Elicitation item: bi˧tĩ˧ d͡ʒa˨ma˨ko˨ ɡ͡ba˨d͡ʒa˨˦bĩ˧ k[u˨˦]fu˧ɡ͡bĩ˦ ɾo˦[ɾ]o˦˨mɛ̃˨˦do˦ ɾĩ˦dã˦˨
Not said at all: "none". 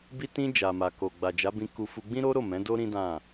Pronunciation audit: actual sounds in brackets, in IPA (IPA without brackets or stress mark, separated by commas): u˧, ɾ